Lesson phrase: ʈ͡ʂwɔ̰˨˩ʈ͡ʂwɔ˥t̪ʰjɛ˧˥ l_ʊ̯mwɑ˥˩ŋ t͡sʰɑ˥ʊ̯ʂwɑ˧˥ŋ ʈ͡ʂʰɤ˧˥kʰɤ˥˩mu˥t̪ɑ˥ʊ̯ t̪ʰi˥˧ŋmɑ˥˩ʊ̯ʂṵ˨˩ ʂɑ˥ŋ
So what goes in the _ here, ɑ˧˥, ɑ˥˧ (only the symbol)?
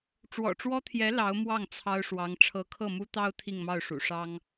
ɑ˧˥